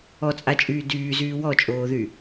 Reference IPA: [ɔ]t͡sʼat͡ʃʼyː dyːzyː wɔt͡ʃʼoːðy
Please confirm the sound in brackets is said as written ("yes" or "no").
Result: yes